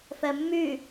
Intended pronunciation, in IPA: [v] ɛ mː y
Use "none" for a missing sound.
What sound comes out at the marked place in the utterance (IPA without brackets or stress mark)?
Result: f